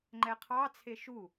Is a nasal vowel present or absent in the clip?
absent